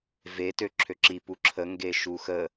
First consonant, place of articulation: labial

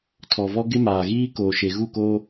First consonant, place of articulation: alveolar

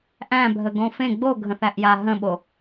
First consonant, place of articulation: glottal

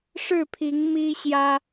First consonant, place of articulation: retroflex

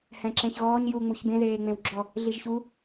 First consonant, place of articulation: glottal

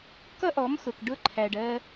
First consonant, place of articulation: velar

